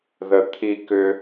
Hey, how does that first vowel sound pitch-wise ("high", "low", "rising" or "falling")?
low